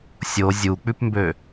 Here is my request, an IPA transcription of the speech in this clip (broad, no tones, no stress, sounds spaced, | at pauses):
sʲ o zʲ u k͡p ʉ p m b ø